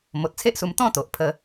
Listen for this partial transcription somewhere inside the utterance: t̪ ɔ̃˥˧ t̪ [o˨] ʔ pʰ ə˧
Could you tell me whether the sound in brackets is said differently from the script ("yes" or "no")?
no